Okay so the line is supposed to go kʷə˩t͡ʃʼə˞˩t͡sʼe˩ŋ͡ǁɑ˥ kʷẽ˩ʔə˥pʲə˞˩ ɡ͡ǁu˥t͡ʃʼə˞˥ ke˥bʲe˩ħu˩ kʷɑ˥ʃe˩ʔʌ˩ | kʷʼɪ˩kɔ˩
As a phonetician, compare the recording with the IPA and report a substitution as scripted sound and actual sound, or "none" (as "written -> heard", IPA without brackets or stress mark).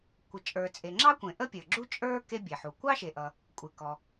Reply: none